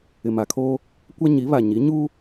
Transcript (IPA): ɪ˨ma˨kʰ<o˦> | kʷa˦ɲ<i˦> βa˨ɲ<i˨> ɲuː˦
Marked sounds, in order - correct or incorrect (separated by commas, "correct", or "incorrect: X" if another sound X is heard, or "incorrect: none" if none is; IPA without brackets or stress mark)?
incorrect: oː˦, incorrect: i˨˦, incorrect: i˨˦